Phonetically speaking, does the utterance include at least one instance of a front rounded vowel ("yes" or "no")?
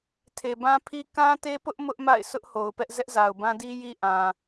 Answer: no